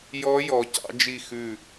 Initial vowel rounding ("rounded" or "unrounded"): rounded